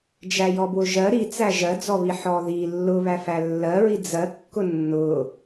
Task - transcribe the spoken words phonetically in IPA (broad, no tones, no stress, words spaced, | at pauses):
d͡ʒæjɔbwʊʒɜ ɾit͡sæ ʒɜd͡zɔβi ħɔði lːʊβæfæ lːɜɹi d͡zɜkːʊ nːʊ